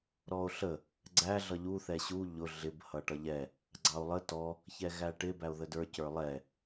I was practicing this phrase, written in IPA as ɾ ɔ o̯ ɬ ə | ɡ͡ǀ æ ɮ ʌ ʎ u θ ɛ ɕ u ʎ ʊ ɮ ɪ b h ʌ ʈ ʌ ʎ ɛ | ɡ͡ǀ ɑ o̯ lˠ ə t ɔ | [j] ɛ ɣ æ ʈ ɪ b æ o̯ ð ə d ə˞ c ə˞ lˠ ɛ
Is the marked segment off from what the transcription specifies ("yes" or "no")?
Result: yes